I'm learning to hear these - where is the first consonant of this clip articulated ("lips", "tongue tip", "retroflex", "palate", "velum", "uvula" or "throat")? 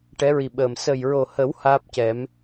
retroflex